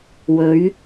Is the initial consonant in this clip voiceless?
no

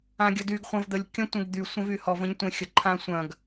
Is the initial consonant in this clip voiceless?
no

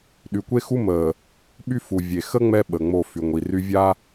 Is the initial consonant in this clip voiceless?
no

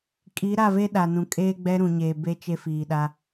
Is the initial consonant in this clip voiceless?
yes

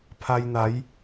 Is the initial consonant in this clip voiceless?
yes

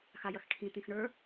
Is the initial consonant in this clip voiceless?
yes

